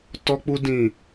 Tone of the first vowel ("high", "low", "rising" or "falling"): high